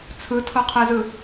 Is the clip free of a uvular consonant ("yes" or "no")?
no